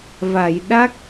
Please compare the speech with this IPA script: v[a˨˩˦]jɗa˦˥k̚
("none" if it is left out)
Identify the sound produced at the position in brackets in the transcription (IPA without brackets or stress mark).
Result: a˨˩˨